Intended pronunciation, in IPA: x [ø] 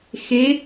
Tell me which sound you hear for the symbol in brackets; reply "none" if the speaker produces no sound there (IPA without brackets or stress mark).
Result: e